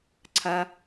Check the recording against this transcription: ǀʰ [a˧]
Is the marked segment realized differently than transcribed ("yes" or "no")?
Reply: no